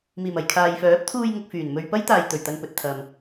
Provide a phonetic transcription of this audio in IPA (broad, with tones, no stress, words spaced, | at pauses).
miː˨˩mɐ˨jkʰaː˨jfœː˨˥p̚ t̪ʰuː˧jŋʊ˨k̚ fyː˨˩nmɵ˧ɥ pɐ˥jt̪aː˨jt̪ɵ˨˩ɥ t̪ɐ˧npɵ˨t̚t̪ʰɐ˨m